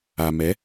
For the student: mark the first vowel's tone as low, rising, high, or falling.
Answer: low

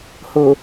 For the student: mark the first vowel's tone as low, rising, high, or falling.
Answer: low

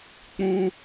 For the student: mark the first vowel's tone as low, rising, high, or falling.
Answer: high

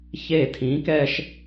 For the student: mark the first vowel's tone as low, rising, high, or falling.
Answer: falling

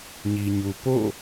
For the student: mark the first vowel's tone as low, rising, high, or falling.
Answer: low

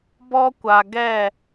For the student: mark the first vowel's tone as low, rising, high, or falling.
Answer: high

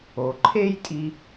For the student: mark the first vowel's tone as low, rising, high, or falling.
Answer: low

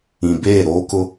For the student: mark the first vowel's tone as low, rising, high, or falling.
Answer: low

